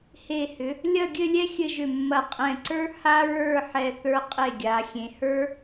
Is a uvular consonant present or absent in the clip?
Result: present